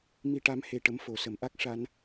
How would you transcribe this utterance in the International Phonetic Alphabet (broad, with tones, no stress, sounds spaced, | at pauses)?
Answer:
m i˧ ʈ a˧˥ m h e˧ ʈ ə˧˥ m f o˨˩˨ s ə˨˩˨ m ʔ a˦˥ k̚ ʂ a˧ n